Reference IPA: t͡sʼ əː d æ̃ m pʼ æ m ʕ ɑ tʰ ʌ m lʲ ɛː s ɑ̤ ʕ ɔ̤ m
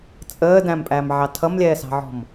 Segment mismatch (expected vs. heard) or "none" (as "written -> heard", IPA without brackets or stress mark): none